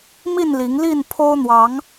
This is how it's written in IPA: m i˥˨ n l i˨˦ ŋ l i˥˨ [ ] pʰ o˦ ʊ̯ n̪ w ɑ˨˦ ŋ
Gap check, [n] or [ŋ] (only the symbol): n